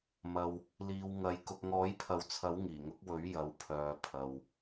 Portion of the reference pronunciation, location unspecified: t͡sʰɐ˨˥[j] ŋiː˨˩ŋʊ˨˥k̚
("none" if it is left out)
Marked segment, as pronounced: w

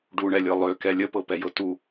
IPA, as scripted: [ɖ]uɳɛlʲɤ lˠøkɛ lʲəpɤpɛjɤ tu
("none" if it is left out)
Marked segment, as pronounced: ɖ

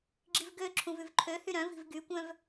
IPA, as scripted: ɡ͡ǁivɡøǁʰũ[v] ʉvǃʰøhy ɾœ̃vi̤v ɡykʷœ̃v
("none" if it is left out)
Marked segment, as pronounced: v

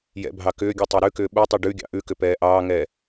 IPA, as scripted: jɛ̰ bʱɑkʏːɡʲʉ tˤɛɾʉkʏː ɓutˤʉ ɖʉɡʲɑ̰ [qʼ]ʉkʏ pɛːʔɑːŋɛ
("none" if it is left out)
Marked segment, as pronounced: ʔ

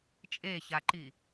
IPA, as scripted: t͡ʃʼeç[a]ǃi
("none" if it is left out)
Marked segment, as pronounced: a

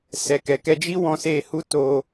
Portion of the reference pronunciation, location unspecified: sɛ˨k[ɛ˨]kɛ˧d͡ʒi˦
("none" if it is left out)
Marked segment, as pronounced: ɛ˨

